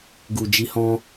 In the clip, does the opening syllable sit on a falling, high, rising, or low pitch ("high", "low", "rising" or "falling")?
low